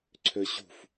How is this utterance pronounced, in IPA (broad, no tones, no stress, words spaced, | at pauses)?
ǀʰøɕṳf